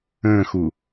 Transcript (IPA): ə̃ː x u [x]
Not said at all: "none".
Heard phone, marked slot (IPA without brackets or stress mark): none